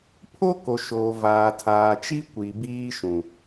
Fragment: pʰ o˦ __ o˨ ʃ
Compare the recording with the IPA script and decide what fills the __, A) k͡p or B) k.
B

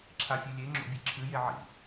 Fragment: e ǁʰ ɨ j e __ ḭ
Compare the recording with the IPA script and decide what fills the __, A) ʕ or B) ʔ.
A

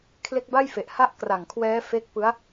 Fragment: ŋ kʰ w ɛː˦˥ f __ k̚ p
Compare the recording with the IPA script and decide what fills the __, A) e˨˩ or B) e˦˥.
B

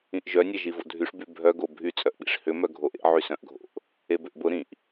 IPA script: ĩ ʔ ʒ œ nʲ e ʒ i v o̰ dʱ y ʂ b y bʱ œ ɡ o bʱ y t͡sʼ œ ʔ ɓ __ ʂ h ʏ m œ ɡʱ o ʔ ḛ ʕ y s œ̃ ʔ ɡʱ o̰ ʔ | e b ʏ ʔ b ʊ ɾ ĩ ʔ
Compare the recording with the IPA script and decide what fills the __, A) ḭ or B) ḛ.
A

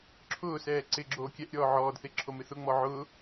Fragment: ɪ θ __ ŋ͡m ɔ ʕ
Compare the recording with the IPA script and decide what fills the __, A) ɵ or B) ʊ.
B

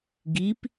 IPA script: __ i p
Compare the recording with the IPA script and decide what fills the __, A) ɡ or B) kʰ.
A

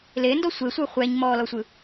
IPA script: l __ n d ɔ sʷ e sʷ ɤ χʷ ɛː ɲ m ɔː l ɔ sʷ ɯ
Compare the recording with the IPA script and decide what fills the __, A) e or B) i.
A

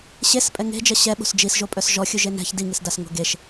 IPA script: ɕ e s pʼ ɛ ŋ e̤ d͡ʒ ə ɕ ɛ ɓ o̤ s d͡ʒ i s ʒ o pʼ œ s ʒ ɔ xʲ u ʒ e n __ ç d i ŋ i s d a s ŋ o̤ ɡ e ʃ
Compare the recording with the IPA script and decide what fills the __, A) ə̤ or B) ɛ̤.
B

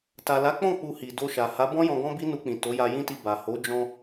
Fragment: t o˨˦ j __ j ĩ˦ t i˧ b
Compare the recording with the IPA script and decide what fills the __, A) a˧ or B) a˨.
A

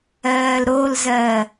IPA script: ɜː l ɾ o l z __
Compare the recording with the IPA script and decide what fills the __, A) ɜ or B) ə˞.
A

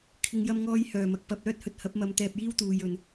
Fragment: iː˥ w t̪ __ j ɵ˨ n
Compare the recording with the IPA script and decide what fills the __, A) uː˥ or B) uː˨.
B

